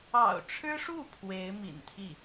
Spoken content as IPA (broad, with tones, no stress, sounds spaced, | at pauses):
ɑ̰˨˩ ʊ̯ ʈ͡ʂʰ ɻ̩˥ ʂ u˥˩ pʰ w e˧˥ ɪ̯ m ḭ˨˩ n t̪ʰ i˥˩